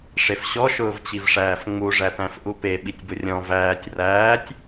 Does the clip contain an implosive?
yes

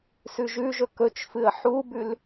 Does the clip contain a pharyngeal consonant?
yes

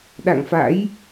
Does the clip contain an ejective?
no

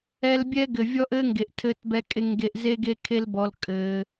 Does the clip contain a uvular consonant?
no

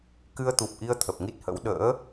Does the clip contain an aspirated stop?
yes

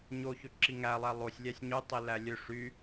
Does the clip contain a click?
yes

